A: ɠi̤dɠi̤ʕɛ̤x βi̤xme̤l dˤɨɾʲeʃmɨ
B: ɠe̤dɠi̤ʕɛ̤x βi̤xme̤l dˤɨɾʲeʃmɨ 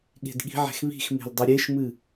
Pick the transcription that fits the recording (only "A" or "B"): B